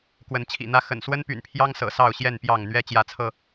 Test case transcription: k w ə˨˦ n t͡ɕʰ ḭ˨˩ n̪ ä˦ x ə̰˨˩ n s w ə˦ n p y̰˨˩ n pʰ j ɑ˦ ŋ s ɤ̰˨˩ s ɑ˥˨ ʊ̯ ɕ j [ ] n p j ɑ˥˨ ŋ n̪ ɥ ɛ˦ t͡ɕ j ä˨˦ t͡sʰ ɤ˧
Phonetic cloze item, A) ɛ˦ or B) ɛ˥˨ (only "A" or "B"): B